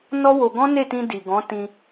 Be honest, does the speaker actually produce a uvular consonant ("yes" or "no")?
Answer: no